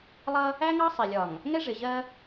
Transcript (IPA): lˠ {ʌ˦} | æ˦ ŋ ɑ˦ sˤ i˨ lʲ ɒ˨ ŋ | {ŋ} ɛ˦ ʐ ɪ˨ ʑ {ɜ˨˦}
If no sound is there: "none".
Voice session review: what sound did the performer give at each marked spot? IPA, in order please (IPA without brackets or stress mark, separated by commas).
ʌ˦, ŋ, ɜ˦